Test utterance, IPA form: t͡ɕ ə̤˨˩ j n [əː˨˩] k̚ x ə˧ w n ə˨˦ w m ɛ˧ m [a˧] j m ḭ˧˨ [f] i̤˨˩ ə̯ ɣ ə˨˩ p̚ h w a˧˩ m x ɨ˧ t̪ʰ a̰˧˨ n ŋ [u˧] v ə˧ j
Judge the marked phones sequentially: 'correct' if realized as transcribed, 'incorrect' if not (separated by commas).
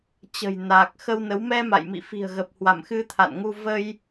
incorrect, incorrect, correct, correct